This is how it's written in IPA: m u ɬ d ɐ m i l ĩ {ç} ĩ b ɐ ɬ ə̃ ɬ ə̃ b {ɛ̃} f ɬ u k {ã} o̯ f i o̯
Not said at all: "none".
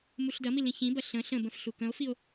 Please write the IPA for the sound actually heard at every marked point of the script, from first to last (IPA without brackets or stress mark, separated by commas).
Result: ç, ə̃, ə̃